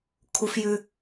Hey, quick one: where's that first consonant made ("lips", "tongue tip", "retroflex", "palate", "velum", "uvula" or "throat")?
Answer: velum